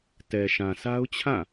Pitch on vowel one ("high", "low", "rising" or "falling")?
low